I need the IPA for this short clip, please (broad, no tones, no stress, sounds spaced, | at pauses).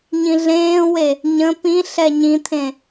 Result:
ɲ ĩ ɮ ẽː w e | ɲ ə̃ p ĩ ɬ ɛ ɲ ĩ t̪ʰ ẽ